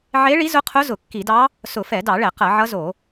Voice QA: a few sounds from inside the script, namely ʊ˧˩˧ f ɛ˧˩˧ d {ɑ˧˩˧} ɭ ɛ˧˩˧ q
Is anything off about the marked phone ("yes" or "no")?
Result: no